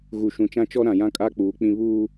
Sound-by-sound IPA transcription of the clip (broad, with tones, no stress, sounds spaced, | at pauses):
ɣ u˨ ʃ ũ˨ t͡ʃ ã˦ t͡ʃ ɔ˦ ɾ ã˨ j ã˦ kʼ a˦ k͡p uː˨˦ k͡p ĩ˦ β uː˦